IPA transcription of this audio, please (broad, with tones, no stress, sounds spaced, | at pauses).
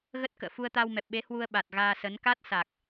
ɣ ə˦˥ t̚ k ə̰ː˧˨ f u˧ ə̯ t̪ a˧ w m ɛ˨˩ p̚ ɓ e˨˦ h w u˧ ə̯ ɓ a˨˩ t̚ ɣ aː˧ s ə˨˦ n k a˦˥ t̚ s a˨˩ k̚